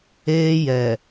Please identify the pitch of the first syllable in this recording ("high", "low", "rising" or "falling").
high